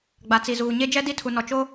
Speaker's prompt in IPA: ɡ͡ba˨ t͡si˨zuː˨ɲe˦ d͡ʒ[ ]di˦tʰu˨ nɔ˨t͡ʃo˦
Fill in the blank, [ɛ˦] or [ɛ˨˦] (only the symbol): ɛ˦